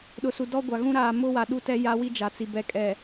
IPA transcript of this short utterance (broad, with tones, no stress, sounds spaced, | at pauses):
ɗ ʊ˨ s u˨ d ɔ˦ ɡʷ a˨ ɣ ũ˦ ɾ aː˨ m ʊ˦ w a˨ ɗ u˦ t ɛ˦ j a˦ w i˦ d͡ʒ a˨ t͡s i˨ b ɛ˨ kʼ ɛ˨